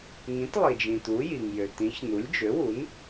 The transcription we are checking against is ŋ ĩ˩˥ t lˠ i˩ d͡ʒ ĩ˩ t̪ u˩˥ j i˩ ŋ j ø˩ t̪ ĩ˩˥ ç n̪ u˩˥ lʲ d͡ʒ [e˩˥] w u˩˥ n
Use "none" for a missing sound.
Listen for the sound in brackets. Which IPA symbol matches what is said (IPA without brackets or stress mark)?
ø˩˥